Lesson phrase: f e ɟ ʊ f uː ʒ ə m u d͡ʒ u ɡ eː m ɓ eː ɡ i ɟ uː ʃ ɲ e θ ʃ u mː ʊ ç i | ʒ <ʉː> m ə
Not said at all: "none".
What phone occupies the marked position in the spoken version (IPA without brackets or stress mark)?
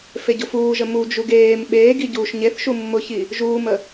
uː